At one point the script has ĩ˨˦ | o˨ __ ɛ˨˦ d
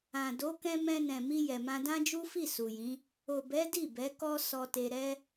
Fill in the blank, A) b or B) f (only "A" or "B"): A